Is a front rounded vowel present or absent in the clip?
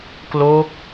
absent